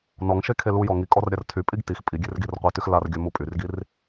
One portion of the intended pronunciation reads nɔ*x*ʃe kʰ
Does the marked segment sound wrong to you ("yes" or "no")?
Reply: yes